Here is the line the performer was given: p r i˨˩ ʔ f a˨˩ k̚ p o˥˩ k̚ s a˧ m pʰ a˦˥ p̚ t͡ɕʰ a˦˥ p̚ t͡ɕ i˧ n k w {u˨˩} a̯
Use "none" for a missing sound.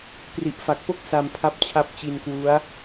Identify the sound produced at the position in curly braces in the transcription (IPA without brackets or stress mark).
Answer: u˦˥